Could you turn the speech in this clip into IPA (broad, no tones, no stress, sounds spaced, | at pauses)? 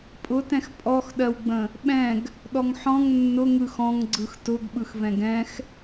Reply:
pʼ ʊ t ɛ̃ x pʼ ɔ x ɗ ɜ w ɡ͡b ə̃ | ɓ ɛ̃ ɡ | ɗ ɔ ŋ ħ ɔ̃ ŋ nː ʊ ŋ ɯ x ɔ̃ ŋ ɡ͡ǀ ɯ x t ʊ ɡ ɓ ɯ x v ɛ̃ ɡ ɛ̃ x